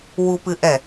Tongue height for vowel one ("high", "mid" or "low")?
high